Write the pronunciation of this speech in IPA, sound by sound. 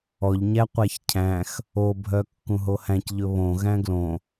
ɔ ʎ ɲ æ qʷ æ ç cʰ æ̃ x | o bʱ œ kː ũ ɦ o h æ̃ c ʎ ɵ β õ ɣ æ̃ ɡ l õ

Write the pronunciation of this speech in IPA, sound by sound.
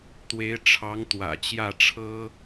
t̪ w e˧˥ ɪ̯ ʈ͡ʂʰ ɑ˧˥ ŋ t̪ w ä̰˨˩ t͡ɕ j ä˥˩ ʈ͡ʂʰ ɤ˥

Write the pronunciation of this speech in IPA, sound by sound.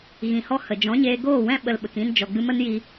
ɣ ĩ˨ h ɔ˦ h ə˨ d͡ʒ ɔ̃˨˦ ɲ eː˧ ɡ oː˦˨ w ɛ̃˦ ɓ ə˧ l ɓ ə˨ k ĩ˦ n d͡ʒ ɔ˨ ɡ͡b ɨ˧ m ə˦ n j i˧

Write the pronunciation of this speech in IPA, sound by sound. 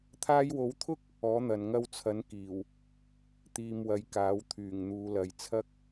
t̪ʰ aː˧ j w o˨˥ w t̪ʰ ʊ˥ k̚ | ɔː˨˥ n̪ ɐ˨ n ŋ ɐ˧ w t͡sʰ ɐ˨˥ n k iː˨˩ w | t̪ iː˨ m w ɐ˨˧ j k aː˨˥ w t̪ʰ yː˨˩ ŋ n̪ uː˨˧ l ɐ˨ j t͡sʰ ɐ˥ k̚

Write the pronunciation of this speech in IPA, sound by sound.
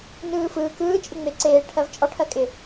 n ɯː f ɯː k ɯː t͡ʃʼ ɪ ŋ͡m e ǀ eː ʈʰ ɜ v t͡ʃʼ ɒ ʈʰ ɜ kʼ ɪ

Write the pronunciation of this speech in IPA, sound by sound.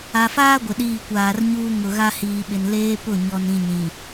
a˨ f aː˦ ɡʷ ɪ˨ ɗ iː˦˨ kʷ aː˨ r ɲ uː˦ ŋ ʊ˨ ɣ a˦ h iː˨ ɓ ɪ˨ n l eː˦ p ʊ˦˨ ɲ ɔ˨ n ĩ˨ ɲ ĩ˨

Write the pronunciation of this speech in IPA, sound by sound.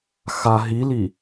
x a ɦ i l i

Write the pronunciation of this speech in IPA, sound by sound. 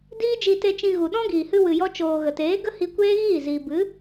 d iː˦ d͡ʒ i˧ t e˧ t͡ʃ ĩ˧ ɣ u˨ ɗ ɔ̃˦ ɡ iː˨ h ɨ˧ w ɨ˨ j ɔ˧ t͡ʃ oː˨ ɣ ə˨ t eː˨˦ ɡ ə˦ h i˧ kʷ eː˦ ɣ iː˦˨ z iː˨ b ɨ˨˦

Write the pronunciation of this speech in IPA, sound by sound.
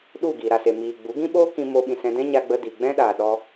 ɗ u˦˨ ɡ iː˨ ɾ a˨ s e˨ m iː˨ ɡ͡b u˨˦ ɡ ĩ˦ ɓ oː˦ k ĩ˧ m o˧ ɓ ĩ˨ s ɛ̃˧ d ɛ̃˦ ɲ a˧ ɡ͡b ə˧ d i˨ ɡ͡b ɛ̃˦ ɗ aː˨ ɗ ɔ˧

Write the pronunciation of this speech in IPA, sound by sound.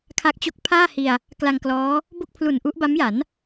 kʰ a˦˥ k̚ t͡ɕ o˦˥ k̚ pʰ aː˥˩ h i˧ a̯ | k l a˧ ŋ k l ɔː˦˥ | b o˥˩ k̚ pʰ l u˨˩ n ʔ u˦˥ ʔ b a˦˥ m j a˩˦ n

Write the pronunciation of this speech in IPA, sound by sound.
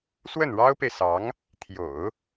s w ə˥˩ n ɻ ɑ˥ ʊ̯ p e˨ ɪ̯ s ɑ˧˥ ŋ | t̪ʰ j o̰˨˩˦ ʊ̯

